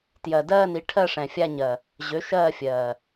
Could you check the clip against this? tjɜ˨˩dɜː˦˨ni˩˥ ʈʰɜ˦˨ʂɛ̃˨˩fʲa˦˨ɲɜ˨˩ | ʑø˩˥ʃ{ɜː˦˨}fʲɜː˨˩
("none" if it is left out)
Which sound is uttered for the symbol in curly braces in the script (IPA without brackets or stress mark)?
ɜː˦˨